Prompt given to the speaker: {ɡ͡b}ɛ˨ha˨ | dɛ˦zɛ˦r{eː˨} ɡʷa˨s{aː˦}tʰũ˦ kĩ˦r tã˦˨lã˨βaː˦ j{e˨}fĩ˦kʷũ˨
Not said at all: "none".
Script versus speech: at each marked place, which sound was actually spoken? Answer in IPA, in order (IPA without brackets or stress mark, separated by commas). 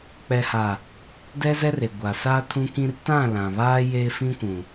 k͡p, e˨, aː˦, e˦